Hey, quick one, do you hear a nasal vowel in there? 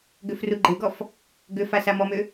no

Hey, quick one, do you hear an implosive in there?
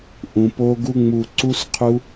no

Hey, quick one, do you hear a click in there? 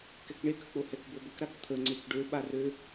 yes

